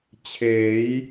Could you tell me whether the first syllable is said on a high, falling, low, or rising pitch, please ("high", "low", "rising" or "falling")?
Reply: rising